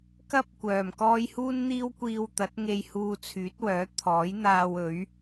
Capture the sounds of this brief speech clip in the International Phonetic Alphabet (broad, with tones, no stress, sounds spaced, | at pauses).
k ɐ˥ p̚ kʷ œː˨˩ m k ɔː˥ j h uː˥ n n̪ iː˥ w kʷ iː˧ w t̪ ɐ˨˥ t̚ ŋ e˧ j h uː˧ t͡sʰ yː˨˥ t̚ w œː˨˥ t̪ʰ ɔː˨˥ j n̪ aː˧ w ɵ˨˥ ɥ